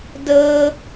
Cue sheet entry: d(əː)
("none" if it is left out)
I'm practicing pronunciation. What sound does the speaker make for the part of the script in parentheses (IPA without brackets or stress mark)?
əː